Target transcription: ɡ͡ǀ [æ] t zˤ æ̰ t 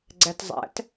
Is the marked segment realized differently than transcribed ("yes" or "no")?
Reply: no